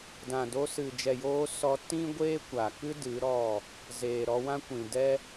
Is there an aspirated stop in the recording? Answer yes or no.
no